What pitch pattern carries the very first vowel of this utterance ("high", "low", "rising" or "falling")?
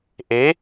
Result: rising